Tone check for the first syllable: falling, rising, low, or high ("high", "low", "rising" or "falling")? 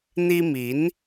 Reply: high